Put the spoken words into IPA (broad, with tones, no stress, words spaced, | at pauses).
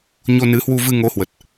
ɲo˧nɨ˨˦hwu˧vɨ˧ ŋo˨˦hwə˨˩t̚